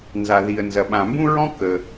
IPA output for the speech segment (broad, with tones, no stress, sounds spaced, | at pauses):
n z a˩ ð i˩ ə̯ n z ɐ˩ ɓ ã˩ m b ũ˥ ɹ ɔ̃˥ k ə˩